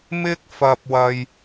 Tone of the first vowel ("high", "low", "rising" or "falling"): high